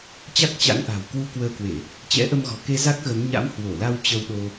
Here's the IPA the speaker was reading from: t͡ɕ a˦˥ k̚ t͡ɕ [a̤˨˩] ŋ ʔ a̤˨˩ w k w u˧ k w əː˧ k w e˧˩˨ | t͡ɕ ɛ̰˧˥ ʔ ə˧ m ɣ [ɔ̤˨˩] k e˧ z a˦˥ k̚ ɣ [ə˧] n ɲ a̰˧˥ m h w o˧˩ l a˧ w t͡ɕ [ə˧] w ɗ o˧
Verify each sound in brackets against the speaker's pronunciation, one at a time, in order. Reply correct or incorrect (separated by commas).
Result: incorrect, correct, incorrect, correct